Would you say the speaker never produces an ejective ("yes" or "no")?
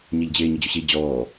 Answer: yes